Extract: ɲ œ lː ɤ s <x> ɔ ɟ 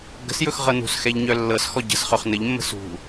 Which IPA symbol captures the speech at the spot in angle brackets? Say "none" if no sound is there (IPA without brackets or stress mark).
x